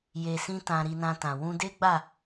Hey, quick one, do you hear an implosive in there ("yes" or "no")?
no